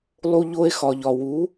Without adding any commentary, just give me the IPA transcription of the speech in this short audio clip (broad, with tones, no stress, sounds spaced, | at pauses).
lˠ u˧ ʎ o˧ e̯ x ɒ˩ ʎ ɒ˩ w u˩˥